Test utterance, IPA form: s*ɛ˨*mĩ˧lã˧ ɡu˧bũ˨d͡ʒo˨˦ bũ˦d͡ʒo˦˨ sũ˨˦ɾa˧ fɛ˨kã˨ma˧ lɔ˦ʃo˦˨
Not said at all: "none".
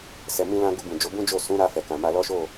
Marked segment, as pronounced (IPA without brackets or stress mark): ɛ˨